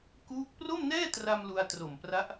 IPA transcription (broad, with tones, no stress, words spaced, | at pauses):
kuː˦˥k̚ pro˥˩mnɛː˥˩tra˧m lu˧a̯tro˨˩mpra˦˥ʔ